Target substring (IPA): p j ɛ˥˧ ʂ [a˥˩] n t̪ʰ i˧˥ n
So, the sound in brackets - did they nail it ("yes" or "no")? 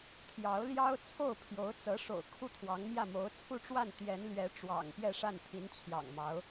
yes